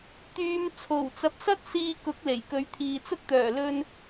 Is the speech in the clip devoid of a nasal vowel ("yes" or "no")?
yes